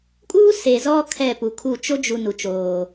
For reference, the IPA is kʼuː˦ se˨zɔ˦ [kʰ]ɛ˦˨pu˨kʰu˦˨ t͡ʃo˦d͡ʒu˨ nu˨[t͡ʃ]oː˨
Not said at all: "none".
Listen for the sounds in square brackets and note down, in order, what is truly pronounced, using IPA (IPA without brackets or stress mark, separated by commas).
kʰ, t͡ʃ